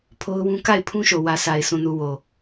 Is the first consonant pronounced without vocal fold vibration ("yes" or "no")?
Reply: yes